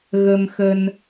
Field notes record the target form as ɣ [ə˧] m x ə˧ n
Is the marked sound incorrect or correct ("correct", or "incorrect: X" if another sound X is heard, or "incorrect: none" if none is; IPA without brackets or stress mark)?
correct